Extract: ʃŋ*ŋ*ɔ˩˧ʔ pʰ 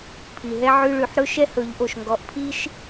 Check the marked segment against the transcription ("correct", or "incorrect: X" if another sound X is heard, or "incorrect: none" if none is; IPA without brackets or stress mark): incorrect: ɡ